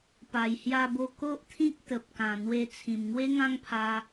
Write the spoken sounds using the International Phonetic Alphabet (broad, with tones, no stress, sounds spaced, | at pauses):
p a˨˩ j h j a˧ b o˧ k o˦ ʔ t̪ʰ ĩ˦ k̚ t̪ ə˨ p̚ k ã˨˩ n̪ w e˧ t͡sʰ ĩ˨˩ m ŋ w e˦ ŋ ã˦ ŋ pʰ a˧